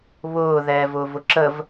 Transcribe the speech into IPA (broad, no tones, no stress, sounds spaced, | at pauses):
β ʊː ð ɛː v ʊː v ʊ ǁ ə v